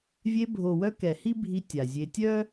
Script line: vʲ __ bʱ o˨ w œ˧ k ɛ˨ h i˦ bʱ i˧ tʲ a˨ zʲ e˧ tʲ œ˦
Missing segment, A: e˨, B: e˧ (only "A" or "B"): B